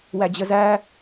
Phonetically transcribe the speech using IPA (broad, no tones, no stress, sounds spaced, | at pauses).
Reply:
w æ d͡ʑ ə z æ